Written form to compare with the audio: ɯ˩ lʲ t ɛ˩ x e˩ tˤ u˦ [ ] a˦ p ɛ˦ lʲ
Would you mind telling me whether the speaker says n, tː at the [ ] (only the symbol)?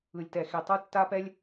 tː